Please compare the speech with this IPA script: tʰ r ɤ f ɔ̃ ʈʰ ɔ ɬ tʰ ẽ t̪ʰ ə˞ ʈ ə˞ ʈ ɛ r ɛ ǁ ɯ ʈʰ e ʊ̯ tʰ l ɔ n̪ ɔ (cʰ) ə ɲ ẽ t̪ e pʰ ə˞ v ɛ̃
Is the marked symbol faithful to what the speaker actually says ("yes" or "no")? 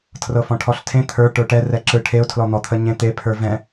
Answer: no